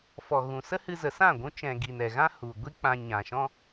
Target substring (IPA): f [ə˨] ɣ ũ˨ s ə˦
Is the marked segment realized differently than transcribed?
yes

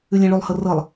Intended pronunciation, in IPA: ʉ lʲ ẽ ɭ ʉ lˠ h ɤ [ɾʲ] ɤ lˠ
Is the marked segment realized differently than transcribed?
yes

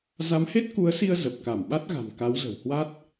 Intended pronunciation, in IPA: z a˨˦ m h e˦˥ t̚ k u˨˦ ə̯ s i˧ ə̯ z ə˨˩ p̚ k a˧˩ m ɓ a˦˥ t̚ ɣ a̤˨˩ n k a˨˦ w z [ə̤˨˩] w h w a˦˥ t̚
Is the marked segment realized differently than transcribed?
no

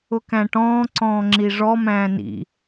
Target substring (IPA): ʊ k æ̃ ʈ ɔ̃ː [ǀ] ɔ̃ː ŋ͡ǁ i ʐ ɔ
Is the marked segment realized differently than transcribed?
no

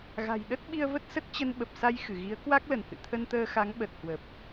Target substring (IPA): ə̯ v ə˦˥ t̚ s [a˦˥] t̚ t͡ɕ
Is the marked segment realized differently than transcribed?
yes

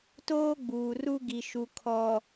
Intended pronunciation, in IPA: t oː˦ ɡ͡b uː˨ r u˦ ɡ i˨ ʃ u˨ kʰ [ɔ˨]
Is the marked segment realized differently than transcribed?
no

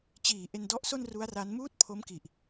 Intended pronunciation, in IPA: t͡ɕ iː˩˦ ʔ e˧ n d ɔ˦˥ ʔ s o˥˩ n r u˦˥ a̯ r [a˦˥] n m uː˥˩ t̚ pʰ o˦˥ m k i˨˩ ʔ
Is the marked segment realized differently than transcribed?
no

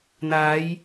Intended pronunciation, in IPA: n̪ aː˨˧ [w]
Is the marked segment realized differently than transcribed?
yes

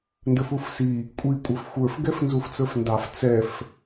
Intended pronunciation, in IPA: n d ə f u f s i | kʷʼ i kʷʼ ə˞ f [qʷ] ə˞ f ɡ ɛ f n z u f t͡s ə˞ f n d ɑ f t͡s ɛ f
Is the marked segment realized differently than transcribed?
yes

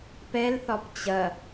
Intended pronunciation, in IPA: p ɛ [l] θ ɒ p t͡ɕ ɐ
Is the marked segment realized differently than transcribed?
no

